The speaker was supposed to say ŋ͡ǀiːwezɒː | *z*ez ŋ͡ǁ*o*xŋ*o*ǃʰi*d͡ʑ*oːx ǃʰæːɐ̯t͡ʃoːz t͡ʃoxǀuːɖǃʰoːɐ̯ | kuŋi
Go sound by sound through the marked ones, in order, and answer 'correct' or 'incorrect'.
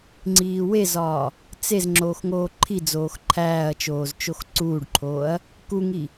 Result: incorrect: t͡s, incorrect: oː, incorrect: oː, incorrect: d͡z

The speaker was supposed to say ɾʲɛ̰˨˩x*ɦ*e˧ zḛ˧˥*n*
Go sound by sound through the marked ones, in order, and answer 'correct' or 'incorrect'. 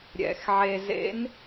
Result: incorrect: ʕ, correct

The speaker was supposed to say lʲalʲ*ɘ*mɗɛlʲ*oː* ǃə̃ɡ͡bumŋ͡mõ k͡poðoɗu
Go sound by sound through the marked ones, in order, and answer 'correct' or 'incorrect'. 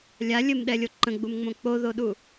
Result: correct, incorrect: o

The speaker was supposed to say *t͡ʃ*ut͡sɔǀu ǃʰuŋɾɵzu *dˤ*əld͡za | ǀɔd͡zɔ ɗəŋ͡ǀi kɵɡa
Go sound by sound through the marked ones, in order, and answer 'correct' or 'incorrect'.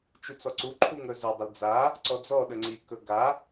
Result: correct, correct

